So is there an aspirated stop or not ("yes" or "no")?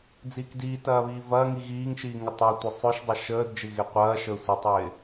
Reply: no